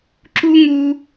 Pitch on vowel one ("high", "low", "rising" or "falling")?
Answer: high